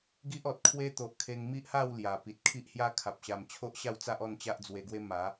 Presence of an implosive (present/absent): absent